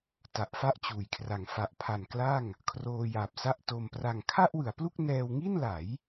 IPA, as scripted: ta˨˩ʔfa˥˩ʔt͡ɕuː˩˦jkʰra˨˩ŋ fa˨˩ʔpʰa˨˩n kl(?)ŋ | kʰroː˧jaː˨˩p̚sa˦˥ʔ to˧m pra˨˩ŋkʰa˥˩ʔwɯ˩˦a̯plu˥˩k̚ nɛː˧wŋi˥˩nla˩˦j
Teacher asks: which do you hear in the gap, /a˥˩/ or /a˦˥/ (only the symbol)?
a˥˩